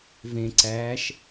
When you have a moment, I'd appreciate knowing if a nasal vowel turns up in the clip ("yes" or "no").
yes